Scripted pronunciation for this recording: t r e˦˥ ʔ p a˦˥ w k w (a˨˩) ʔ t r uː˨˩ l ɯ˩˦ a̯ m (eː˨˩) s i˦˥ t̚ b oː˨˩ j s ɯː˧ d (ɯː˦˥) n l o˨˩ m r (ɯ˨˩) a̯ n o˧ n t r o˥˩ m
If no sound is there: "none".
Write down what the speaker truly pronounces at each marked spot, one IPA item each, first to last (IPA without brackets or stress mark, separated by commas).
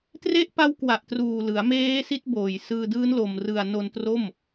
a˨˩, eː˦˥, ɯː˦˥, ɯ˨˩